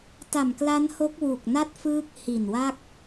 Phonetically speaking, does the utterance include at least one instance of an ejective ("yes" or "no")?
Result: no